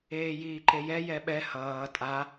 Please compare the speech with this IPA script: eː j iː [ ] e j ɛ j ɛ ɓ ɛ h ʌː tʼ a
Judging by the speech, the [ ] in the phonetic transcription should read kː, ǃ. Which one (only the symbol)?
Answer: ǃ